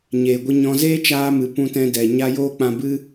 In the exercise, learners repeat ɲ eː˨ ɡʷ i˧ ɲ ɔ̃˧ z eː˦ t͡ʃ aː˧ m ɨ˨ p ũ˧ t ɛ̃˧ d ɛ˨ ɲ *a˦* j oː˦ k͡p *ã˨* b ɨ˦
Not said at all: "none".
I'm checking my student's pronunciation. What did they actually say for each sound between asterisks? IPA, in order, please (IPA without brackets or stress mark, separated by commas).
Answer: a˦, ã˧